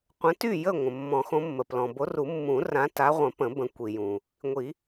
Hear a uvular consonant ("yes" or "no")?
yes